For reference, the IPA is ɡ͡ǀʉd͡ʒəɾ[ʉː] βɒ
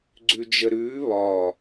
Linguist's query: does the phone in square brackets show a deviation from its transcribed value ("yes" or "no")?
no